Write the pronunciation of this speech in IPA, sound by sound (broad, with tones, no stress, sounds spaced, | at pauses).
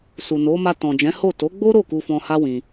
s u˨ n o˨˦ m a˧ t ɔ̃˨ d͡ʒ ɛ̃˨˦ h o˦˨ t o˨˦ ɡ͡b o˦ ɾ o˦˨ k u˧ f ɔ̃˧ h a˦ w ĩ˧